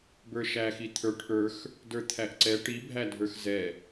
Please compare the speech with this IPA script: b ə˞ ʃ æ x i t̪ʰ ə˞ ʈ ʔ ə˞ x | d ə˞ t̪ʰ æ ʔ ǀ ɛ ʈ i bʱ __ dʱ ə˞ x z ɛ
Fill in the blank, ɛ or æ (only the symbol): æ